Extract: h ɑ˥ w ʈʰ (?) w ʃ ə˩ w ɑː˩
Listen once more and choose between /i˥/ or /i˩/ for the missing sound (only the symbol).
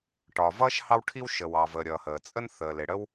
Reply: i˥